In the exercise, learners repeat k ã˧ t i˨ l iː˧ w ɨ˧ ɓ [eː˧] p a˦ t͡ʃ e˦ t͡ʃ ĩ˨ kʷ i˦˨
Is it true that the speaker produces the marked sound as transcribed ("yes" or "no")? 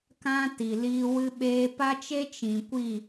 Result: yes